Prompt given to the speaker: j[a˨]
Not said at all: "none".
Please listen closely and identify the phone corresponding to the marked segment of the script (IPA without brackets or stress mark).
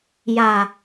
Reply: a˨